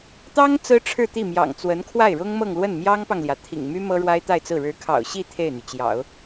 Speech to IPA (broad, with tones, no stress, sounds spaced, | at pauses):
t̪ ɑ˥ ŋ t͡s ɹ̩˥ ʈ͡ʂʰ ɻ̩˥˧ t̪ i˥˩ m j ɑ̰˨˩ ŋ t͡s w ə˧˥ n kʰ w a˥˩ ɪ̯ ɻ ʊ˥ ŋ m ɤ˥˧ ŋ l w ə˥˩ n m j ɑ˥ ŋ p ɑ˨ ŋ l j ä˩ t̪ʰ ḭ˨˩ ŋ m y˥ m ɤ˥ ɻ w a˥ ɪ̯ t̪ a˥˧ ɪ̯ t͡s ɹ̩˥˩ ɻ ɻ̩˧˥ kʰ ɑ̰˨˩ ʊ̯ ɕ i˥˧ t̪ʰ e˥˩ ɪ̯ n̪ y˩ t͡ɕ j ɑ̰˨˩˦ ʊ̯